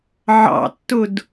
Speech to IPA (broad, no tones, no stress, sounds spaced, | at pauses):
ʕ ɑ̰ tː ʊ d